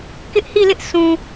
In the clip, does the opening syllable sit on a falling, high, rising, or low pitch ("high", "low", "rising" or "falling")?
high